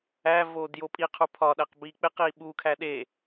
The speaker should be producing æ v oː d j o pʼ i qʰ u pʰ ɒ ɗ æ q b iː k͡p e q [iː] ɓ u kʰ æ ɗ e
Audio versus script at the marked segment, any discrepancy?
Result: no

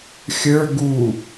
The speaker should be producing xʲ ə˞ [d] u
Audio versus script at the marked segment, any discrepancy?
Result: yes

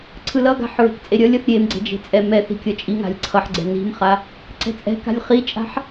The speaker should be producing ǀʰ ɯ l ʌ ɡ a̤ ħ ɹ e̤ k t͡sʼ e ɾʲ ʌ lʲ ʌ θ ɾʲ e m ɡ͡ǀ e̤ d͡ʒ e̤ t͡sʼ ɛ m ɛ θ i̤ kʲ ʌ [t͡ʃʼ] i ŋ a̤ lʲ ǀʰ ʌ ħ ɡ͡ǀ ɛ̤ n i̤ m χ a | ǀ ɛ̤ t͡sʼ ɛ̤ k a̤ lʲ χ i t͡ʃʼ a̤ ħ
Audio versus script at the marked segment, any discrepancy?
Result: no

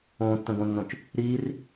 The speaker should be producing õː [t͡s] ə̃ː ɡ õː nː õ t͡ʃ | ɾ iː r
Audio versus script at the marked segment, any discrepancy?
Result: yes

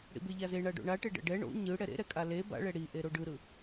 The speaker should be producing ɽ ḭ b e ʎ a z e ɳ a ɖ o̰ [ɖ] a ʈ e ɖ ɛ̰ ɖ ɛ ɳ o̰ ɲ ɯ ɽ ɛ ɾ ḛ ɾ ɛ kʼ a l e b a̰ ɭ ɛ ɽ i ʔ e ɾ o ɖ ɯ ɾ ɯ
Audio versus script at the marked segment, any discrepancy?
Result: yes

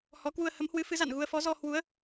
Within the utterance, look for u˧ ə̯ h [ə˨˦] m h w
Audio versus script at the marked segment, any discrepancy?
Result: no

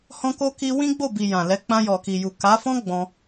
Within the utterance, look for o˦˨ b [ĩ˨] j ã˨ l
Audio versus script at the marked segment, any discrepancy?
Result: yes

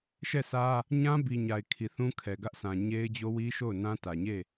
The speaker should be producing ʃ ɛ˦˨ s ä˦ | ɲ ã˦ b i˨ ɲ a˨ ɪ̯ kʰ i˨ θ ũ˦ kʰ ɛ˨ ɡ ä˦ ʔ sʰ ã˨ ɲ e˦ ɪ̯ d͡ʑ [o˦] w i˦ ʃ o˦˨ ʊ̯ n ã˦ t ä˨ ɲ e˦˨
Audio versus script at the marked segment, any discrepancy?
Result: no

